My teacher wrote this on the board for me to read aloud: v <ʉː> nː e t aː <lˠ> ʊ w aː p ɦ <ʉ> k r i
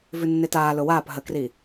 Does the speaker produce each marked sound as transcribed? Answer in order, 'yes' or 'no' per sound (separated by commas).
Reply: no, no, no